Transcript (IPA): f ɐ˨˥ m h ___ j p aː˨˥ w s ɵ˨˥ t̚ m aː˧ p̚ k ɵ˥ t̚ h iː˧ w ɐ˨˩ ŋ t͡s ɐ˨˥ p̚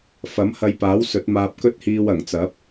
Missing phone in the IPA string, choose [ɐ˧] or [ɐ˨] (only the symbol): ɐ˧